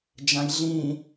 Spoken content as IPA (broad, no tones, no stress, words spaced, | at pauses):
d͡ʒãjɮĩ